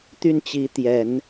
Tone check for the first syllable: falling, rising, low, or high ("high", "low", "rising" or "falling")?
falling